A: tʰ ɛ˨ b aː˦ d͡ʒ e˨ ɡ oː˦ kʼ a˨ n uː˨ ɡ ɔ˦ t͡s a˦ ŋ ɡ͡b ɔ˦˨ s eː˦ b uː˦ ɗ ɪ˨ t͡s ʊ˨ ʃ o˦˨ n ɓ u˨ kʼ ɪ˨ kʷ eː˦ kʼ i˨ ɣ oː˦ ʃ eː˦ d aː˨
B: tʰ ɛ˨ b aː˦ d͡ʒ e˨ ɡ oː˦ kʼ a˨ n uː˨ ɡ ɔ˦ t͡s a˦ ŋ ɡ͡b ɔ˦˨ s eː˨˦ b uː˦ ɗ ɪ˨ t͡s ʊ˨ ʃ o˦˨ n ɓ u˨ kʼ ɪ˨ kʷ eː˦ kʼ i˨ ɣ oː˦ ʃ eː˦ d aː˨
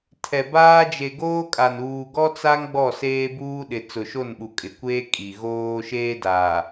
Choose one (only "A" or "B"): A